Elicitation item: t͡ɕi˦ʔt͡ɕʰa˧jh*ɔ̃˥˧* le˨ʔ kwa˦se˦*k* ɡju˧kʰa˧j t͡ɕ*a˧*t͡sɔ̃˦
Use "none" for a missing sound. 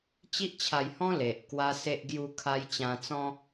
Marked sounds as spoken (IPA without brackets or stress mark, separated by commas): ɔ̃˦, ʔ, ã˧